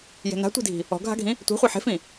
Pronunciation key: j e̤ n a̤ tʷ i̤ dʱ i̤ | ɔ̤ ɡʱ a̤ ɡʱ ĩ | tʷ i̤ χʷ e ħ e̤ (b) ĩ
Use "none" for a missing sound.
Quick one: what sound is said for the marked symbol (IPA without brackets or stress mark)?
f